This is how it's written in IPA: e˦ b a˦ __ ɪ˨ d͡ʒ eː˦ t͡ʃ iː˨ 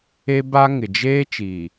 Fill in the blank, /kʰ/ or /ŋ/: ŋ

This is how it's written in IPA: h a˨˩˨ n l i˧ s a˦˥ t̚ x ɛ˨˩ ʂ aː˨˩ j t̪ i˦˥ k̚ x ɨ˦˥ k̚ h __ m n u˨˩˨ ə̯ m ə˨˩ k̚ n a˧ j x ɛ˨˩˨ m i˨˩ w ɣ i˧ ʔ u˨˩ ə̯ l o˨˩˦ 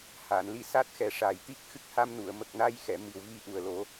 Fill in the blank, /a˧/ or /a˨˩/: a˧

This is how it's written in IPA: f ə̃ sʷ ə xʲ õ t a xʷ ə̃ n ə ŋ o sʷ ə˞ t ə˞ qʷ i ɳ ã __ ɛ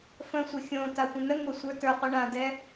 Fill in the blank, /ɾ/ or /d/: d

